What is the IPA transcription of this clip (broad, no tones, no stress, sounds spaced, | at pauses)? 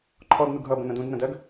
ǃʰ ɔ d n u ɡ ɦ ʌ b ə̃ n ə̃ d ũ d n ə̃ d ɜ ɡ